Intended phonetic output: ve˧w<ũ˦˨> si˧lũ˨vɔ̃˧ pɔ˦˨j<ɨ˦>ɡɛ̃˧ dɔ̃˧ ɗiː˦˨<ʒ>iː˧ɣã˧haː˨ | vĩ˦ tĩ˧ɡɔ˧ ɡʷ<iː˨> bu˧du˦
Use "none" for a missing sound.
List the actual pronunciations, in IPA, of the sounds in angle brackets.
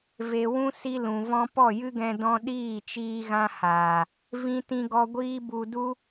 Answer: ũ˦, ɨ˦, t͡ʃ, iː˦

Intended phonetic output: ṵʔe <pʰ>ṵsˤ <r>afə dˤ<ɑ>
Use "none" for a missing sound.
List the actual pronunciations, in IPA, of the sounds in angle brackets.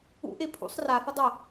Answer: pʰ, r, ə

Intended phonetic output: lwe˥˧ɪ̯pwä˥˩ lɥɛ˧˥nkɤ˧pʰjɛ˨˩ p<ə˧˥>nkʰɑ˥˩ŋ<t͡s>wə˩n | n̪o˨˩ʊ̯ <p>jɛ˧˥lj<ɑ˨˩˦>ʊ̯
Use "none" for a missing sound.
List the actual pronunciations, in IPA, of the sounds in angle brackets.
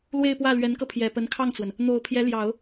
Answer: ə˧˥, t͡s, pʰ, ɑ˨˩˦

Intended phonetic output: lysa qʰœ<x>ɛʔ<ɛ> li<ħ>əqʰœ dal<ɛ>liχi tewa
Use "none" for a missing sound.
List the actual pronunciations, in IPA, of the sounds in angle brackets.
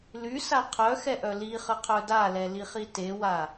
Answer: x, œ, χ, ɛ

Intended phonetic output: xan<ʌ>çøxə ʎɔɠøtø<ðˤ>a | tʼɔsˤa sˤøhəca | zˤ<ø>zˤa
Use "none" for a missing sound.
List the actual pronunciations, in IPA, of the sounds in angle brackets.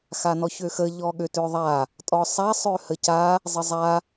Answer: ɔ, ðˤ, ə

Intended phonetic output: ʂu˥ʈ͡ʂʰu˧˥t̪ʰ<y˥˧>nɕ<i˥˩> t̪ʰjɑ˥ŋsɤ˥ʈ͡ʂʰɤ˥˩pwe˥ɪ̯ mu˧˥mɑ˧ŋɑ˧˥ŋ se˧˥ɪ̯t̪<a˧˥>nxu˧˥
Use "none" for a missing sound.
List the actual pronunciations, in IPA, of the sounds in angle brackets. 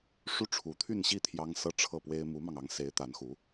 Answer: y˥˧, i˥˩, a˧˥

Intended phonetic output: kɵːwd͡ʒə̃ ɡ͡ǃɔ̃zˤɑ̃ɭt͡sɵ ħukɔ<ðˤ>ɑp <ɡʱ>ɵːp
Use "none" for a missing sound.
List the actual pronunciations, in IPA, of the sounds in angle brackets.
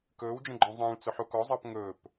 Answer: zˤ, ŋ

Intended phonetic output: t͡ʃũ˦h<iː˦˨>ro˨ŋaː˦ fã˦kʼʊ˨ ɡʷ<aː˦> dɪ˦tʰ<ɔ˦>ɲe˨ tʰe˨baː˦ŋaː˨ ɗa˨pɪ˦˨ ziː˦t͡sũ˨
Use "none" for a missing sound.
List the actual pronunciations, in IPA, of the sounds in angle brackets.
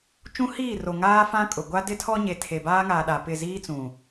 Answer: iː˦˨, a˦, ɔ˦

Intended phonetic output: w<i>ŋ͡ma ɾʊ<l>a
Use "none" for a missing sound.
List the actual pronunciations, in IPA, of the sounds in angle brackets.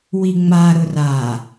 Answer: i, r

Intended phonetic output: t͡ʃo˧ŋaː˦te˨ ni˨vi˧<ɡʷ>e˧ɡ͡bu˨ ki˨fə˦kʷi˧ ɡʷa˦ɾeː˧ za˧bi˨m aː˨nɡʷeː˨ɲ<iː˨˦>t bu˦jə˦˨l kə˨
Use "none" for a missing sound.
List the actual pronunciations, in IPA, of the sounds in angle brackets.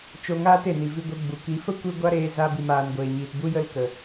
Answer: ɡʷ, iː˨

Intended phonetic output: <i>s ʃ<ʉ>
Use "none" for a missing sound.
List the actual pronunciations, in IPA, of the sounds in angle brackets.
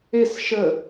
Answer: e, ə

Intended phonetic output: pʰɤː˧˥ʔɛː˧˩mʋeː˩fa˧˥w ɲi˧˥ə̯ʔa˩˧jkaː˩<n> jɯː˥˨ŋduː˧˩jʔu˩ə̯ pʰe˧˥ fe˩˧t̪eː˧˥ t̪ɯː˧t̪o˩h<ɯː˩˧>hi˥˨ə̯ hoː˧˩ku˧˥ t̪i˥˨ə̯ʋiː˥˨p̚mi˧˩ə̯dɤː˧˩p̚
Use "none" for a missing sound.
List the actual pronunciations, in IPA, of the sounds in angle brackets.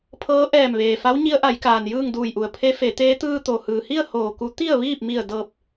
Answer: n, ɯː˩

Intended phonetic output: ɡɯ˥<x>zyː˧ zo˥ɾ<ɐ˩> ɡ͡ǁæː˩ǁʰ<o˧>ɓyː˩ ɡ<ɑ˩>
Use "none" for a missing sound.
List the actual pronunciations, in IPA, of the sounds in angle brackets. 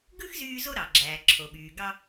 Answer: x, ɑ˩, o˩, ɑ˧

